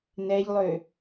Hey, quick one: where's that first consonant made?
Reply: tongue tip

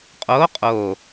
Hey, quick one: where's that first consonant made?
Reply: uvula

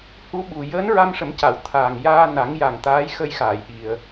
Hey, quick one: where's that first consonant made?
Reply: throat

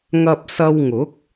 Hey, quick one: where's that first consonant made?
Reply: velum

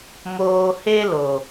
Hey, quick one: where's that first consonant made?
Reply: lips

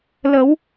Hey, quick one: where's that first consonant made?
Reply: tongue tip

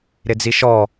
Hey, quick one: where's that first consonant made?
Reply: tongue tip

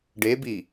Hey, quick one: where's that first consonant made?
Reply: retroflex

